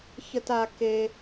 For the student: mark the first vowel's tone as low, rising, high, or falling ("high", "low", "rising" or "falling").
high